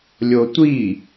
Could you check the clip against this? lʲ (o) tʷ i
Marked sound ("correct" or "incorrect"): correct